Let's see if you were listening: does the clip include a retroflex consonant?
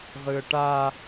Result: yes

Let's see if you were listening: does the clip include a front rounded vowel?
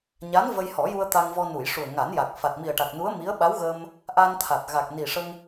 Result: no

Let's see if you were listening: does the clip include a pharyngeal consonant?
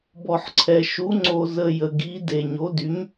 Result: yes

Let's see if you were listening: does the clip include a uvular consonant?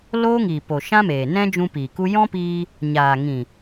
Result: no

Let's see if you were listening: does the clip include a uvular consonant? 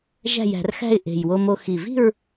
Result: no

